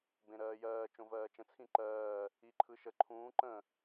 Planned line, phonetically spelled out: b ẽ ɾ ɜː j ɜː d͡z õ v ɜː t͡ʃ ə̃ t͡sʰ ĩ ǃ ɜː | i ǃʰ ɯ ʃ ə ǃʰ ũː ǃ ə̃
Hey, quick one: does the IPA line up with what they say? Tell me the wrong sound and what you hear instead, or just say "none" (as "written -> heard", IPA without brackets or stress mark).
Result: d͡z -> t͡ʃ